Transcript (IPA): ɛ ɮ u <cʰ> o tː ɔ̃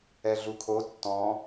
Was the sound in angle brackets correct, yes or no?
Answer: no